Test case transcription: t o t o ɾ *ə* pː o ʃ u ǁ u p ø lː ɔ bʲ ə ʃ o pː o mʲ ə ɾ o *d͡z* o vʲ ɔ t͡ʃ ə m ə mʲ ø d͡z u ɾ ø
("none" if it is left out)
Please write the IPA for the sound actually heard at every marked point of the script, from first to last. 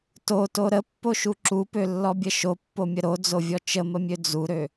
ə, d͡z

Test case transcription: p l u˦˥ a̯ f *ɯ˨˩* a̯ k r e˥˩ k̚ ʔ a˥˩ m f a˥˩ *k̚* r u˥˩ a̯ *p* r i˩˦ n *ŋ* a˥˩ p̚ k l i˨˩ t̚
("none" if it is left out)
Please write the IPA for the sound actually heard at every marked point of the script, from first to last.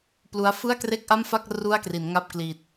ɯ˥˩, k̚, k, ŋ

